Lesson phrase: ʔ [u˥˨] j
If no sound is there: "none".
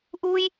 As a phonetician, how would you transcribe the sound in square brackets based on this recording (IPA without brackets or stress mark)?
u˧